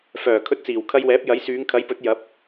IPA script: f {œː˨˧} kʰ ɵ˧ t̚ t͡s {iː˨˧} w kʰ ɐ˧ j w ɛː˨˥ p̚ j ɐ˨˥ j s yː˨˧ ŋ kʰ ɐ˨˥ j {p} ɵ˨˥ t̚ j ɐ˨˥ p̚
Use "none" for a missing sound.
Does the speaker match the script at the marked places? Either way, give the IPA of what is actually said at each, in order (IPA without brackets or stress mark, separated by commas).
œː˨˩, iː˨˩, p